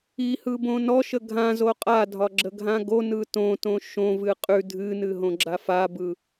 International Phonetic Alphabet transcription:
ihɯbõ nɔʃə ɡʱãzo qʼadʱɒɡ͡ǁəɡʱã ɡonɯ tõtõ ʃõvɨ qʼʉ dʱɨnɨɦõɡ͡ǁa fabɯ

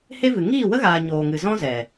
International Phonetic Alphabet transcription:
he˦vɨ˨ ŋiː˦˨wə˦ɣaː˨ ɲoː˨ŋɨ˨ zɔ̃˦zɛ˨

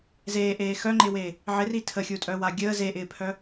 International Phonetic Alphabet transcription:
zeːʔeː xœŋ͡ǃɪːweː | ʕɪri tʰəxʲutʼœwa ɡʲəː zeʔɪːpʰœ

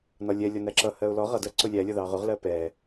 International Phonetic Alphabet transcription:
nɒlʲɛ lʲɒnæǁʌ hɜʊ̯lɔ ʁʌdɜǀʊ lʲælʲʌ ðɑʁʊʁ lɜpɛ

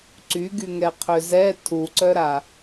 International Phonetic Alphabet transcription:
ǀyɡyŋɛ qʰøzɛ tʰuǀœɾa

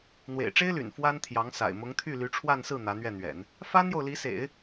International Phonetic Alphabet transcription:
n̪wḛ˨˩ɪ̯ʈ͡ʂe˥ɪ̯ly̰˨˩n fwa˥nt̪ʰjɑ˧˥ŋ sa̰˨˩ɪ̯mʊ˧˥ŋt̪ʰy˥˩ ly˧˥ʈ͡ʂʰwa˥˧nsɹ̩˥˩ n̪ä˧˥n̪ɥɛ˥˩n̪ɥɛ̰˨˩˦n | fa˥njo˨ʊ̯li˧˥sḛ˨˩˦ɪ̯

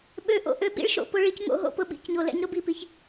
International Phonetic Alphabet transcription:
ɓø˨ʔo̰˨ ʔø˦ɓḭ˦ɭʃo̰˨ pʊ˦˨ ɭi˦cŋo̰˦ɦo̰˦˨pʊ˦ ɓḭ˦˨cɲo˨lɛ̰˦ɲ ɾʊ˦bi˨pi˨ç

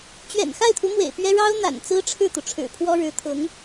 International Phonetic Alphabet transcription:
t͡ɕɥɛ̰˨˩nxa˥˩ɪ̯t̪ʰu˧˥ mwḛ˨˩ɪ̯pɥɛ˥ ɻɑ˥ʊ̯n̪a̰˨˩nt͡sɹ̩˥ ʈ͡ʂʰɻ̩˥˩t̪u˩ ʈ͡ʂʰɻ̩˨˩pʰwɔ˥ɻɻ̩˧˥ t̪ʰʊ˧˥ŋ

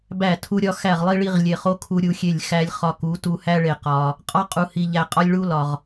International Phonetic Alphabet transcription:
bæ˦˨tʰu˦ɾʲɒ˦ xæ˦˨ʁlˠi˦ɭi˦ʁ lʲe˨χo˦ kʰu˦ɾʲu˦xʲe˦˨lʲ xæ˦lʲ χɒ˦ku˨˦ tu˨hæ˦ ɭe˨ qɒ˨ | qʼɒ˦qʼu˨hi˨ ʎæ˨qʼɒ˦lʲ ɭu˦ lɒ˨ʁ

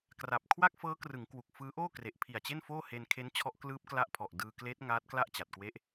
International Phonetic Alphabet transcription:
kra˨˩p̚ kʰwa˥˩k̚fɤː˦˥krɯ˩˦ŋ kwu˨˩k̚fɯː˦˥ʔoː˥˩ kre˨˩ʔpʰi˨˩a̯t͡ɕe˥˩nfoː˥˩ he˧nkʰe˦˥n t͡ɕʰɔ˦˥ʔklɯː˦˥p̚kla˦˥ʔpʰɔ˨˩ʔ dɯː˧kleː˦˥t̚ ŋaː˦˥t̚ kla˥˩ʔt͡ɕa˨˩t̚kwe˦˥ʔ

